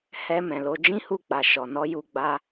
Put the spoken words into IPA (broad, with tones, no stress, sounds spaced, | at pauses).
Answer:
h ɛ˧ m ɛ̃˨ l o˧ d͡ʒ ĩ˦ h u˦˨ k͡p a˨ ʃ ɔ˨ n ɔ˧ j u˧ ɡ͡b a˧